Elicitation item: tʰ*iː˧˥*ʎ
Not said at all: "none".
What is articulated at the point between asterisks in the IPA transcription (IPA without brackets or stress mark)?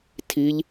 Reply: iː˧˥